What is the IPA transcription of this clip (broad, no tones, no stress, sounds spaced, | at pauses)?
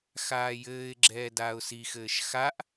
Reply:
x aː j ɘː ɪ̯ ɡ͡ǁ ɛː d aː ʊ̯ s i x ɘː ʃ x a ʔ